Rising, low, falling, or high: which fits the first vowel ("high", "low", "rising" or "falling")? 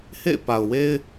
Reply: falling